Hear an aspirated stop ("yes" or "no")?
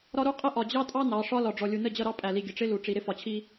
yes